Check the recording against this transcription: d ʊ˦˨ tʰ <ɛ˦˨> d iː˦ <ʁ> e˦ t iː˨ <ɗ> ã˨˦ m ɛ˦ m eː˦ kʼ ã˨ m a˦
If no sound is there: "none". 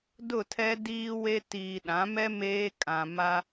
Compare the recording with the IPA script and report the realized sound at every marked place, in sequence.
ɛ˦, w, ɗ

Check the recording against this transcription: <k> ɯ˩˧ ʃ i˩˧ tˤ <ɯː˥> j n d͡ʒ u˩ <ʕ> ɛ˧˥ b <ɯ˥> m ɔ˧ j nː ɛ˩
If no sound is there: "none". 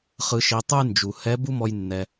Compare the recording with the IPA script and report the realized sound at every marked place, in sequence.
χ, ɯ˥, h, u˥

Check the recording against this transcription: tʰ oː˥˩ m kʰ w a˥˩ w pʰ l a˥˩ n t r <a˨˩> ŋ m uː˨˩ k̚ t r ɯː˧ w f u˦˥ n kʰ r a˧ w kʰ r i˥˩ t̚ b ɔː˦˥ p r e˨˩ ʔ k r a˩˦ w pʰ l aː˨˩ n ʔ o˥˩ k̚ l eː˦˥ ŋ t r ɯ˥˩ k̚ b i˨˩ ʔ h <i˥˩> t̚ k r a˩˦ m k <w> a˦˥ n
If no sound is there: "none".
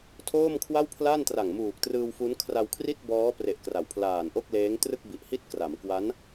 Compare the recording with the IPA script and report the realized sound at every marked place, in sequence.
a˨˩, i˥˩, w

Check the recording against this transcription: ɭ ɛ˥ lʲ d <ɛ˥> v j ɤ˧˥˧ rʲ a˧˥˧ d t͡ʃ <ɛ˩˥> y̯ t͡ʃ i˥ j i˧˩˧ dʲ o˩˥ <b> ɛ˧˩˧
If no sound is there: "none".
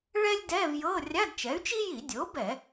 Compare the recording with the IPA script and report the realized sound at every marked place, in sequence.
ɛ˧˥˧, ɛ˩˥, b

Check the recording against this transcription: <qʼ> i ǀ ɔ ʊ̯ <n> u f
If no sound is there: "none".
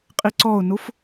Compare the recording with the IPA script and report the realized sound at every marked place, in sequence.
qʼ, n

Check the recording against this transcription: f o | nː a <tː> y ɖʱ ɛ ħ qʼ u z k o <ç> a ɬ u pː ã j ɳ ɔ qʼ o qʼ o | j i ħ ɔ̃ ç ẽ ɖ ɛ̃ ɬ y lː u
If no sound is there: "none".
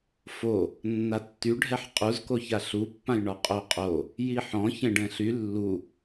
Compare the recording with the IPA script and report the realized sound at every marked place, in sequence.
tː, ç

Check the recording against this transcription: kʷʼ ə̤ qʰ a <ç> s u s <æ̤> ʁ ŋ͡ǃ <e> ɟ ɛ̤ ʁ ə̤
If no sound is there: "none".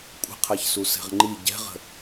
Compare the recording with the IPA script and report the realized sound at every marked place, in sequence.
ç, ɛ̤, i

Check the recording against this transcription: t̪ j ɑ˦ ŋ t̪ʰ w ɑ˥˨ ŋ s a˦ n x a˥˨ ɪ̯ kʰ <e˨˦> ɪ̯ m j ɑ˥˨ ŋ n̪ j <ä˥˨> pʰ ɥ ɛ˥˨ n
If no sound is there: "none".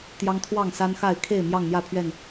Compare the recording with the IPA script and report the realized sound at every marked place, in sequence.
e˥˨, ä˥˨

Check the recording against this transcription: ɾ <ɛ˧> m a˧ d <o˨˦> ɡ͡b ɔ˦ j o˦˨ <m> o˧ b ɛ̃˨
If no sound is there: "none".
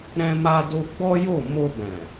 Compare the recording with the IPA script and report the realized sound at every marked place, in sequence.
ɛ̃˧, o˧, m

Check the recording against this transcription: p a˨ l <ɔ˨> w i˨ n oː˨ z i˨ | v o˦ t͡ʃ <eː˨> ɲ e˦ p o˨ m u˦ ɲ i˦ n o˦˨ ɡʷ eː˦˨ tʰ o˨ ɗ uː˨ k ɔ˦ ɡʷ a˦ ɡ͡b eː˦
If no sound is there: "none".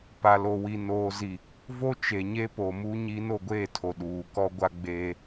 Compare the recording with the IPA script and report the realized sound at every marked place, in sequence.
o˨, e˨

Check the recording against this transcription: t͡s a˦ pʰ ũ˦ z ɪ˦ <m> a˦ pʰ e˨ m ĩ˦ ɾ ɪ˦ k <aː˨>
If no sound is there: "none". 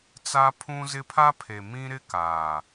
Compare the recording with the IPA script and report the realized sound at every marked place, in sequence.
pʰ, aː˨

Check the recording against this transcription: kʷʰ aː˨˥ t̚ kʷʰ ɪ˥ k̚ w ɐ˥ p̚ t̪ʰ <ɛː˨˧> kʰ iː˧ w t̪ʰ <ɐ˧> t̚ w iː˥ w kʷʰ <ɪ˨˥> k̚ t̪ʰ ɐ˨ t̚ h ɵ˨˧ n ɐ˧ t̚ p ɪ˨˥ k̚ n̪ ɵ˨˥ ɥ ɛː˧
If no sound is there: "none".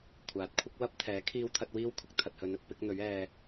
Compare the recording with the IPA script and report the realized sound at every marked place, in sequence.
ɛː˨˥, ɐ˧, ɪ˥

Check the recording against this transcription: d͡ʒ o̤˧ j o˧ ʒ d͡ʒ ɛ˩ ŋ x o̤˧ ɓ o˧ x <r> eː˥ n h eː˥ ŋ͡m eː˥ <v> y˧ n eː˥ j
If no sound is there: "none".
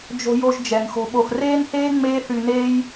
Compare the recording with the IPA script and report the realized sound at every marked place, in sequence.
r, θ

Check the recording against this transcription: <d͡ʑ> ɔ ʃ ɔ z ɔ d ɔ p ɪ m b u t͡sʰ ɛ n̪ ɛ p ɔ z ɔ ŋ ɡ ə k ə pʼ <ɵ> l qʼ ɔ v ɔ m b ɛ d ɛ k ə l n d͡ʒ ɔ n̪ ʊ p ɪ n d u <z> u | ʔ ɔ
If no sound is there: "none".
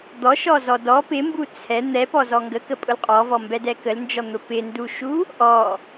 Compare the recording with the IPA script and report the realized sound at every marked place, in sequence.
d̪, ʊ, ʃ

